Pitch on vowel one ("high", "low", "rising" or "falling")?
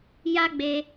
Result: high